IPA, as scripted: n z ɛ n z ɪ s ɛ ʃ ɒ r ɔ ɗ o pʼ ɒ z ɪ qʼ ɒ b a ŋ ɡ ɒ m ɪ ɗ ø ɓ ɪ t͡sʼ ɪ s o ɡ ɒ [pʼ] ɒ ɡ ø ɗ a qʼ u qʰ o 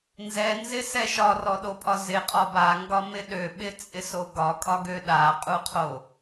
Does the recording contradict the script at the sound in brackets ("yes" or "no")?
yes